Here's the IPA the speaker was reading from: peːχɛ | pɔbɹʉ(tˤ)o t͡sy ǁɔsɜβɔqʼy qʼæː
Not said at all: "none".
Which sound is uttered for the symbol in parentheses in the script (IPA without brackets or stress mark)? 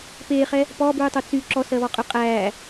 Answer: tˤ